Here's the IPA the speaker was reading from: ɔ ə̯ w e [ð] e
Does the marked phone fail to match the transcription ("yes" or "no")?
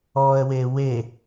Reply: yes